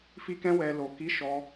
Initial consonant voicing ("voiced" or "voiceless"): voiceless